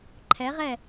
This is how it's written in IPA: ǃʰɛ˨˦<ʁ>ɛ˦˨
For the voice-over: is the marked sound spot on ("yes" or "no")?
yes